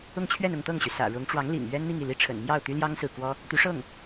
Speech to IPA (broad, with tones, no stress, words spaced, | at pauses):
ʊ˥˧ŋt͡ɕʰɥɛ˥˧n ʊ˥˧ŋt̪ɤ˥˩ŋɕy˩ sä̰˨˩ ɻʊ˧˥ŋ ʈ͡ʂwɑ˧˥ŋ lḭ˨˩ŋɥɛ˥n n̪i˥˧ŋ i˥˩li˥ʈ͡ʂʰə̰˨˩n mjɑ˥˩ʊ̯t̪y˥ljɑ˥ŋ sɹ̩˥˩ kwɔ˥ | t̪y˧˥ ʂɤ˥˩ŋ